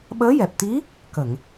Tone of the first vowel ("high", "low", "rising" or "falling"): rising